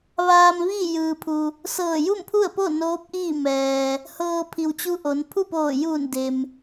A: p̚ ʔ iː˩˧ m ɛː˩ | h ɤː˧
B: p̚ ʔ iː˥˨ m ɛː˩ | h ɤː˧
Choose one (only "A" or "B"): B